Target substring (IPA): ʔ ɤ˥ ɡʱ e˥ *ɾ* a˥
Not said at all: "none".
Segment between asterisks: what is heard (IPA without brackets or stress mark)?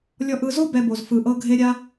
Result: ɾʲ